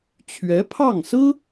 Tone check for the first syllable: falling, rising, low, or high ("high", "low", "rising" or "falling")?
rising